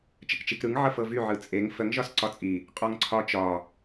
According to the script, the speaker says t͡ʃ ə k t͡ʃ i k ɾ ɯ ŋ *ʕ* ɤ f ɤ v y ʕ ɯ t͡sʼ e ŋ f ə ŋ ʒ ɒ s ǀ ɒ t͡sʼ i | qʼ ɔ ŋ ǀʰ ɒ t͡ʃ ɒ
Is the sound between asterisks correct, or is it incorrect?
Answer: correct